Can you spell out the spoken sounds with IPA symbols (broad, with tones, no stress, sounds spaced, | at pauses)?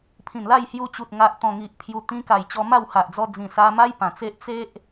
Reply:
pʰ ĩ˨˩ n l a˥˧ j h j u˧ t͡ɕ u˨ t̚ ŋ a˨ ʔ t̪ ɔ̃˨˩ ŋ i˨ ʔ pʰ j u˨˩ t̪ ĩ˧ k a˨˩ j t͡ɕ ɔ˧ m a˥˧ w h a˨ ʔ d͡z ɔ˧ d͡z ĩ˨˩ s a˧ m a˦ j p ã˨˩ t͡s e˦ ʔ t͡s e˦ ʔ